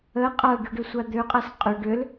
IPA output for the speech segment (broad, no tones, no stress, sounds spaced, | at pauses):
ə qʼ a ɖ u ɖ ø sʷ a d̪ ø qʼ a s qʼ ø ɖ ø l